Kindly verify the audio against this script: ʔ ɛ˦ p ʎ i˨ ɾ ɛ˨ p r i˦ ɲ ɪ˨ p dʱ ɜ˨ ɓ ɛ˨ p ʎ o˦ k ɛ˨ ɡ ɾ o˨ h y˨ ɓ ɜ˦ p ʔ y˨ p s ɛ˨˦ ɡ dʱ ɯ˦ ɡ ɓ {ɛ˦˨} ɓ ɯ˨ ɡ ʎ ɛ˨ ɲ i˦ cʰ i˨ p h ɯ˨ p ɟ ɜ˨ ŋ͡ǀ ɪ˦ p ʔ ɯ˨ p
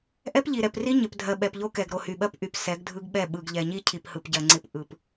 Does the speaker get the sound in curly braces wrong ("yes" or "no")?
no